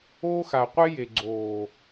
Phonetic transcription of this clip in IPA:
oː˦ x a˨ qʷ e˦ j e˨ ɡ͡ǀ oː˨

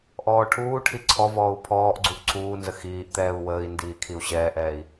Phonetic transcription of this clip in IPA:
ʔ ɔː ʈʰ uː ʈʰ i ǀʰ ɔ v ɔː u̯ pʰ ɔː ʔ ɡ͡ǀ u ʔ ǀʰ uː n z ə x iː ʔ t̪ ɛː u̯ w əː i̯ n d iː kʰ i u̯ ɕ ɛː ʔ ɛː i̯

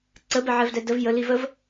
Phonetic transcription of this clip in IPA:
ǀ ə b ɛ ʕ ɛ v d ɛ d ə v j ə l i v ə v

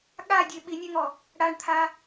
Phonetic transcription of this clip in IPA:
ɠ a dʲ e ɓ i nʲ ɛ ŋ ɔ | ɽ a ɳ t̪ʰ a

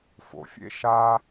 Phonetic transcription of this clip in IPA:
f o̰˨ fʲ ḛ˦ ʃ a˦

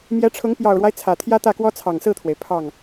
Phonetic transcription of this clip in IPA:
m j ɛ˧˥ ʈ͡ʂʰ ʊ˧˥ ŋ p j ɑ˨˩ ʊ̯ ɻ w a˦ ɪ̯ t͡sʰ ä˨˩ t̪ʰ j ä˥ t̪ ä˥˩ k w ɔ˥ t͡sʰ ɑ˨˩ ŋ s ɹ̩˥˩ t̪ʰ w e˩ ɪ̯ pʰ ɑ˥˩ ŋ

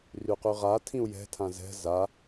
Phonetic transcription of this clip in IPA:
r y q y ʁ a tʰ ĩ u̯ j ɛ̤ tʰ ã z ɛ̤ z a

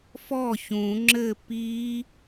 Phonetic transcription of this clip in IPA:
f ɔ ç ũ ŋ͡ǁ ɘ p i

